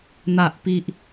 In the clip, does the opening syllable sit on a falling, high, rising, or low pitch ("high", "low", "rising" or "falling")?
low